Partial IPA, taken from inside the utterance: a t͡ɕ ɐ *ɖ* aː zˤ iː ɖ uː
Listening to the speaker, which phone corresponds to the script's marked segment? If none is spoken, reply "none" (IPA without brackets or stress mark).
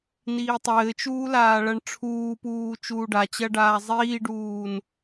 ɖ